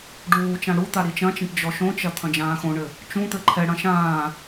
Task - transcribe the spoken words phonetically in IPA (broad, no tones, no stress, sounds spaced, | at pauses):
ɖ uː t͡ʃ ã ɽ u t̪ a ɾ i t͡ʃ ɐ̃ t͡ʃ ɛ̃ ʈ d͡ʒ ɔ ʃ õ t͡ʃ ɐ t̪ʰ ɐ̃ d͡ʒ ãː x õ ɳ ɘ | t͡ʃ ũ t̪ ɘ ǃʰ ɛ ɽ ɐ̃ ʃ ãː